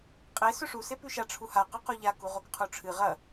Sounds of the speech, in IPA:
qʼ e s ɵ ʂ u s e p ʉ ʃ a ʈ͡ʂʰ u h a q ɐ q o ʎ a k u ʁ o k qʰ u ʈ͡ʂʰ ɨ ʁ ɐ

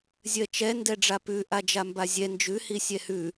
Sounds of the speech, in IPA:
zʲ ɜ t͡ʃ ɛ n d ɛ ɖ͡ʐ a p ʉ ʔ a d͡ʒ a m b a zʲ ɛ n d͡ʒ ʉ h i sʲ ɛ h ʉ

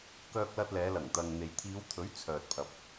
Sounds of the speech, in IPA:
k œː˧ k̚ l ɐ˧ t̚ l ɛː˨˧ l ɐ˨˩ ŋ t̪ ɐ˨ ŋ n̪ e˨ j t̪ʰ iː˨˧ w t̪ʰ ɵ˨˥ ɥ t͡sʰ œː˨ t̚ pʰ ɐ˨ p̚

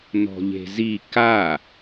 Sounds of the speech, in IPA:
n ɔ̤ ʎ e̤ z i k a

